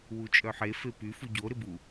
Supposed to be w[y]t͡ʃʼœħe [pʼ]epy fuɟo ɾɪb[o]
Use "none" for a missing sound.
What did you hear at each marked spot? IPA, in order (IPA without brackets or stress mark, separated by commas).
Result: u, f, u